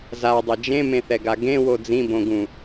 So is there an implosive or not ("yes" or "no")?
no